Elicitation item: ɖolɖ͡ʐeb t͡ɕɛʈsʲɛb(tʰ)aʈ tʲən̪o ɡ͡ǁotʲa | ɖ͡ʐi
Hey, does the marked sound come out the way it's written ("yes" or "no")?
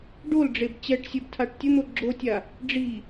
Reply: yes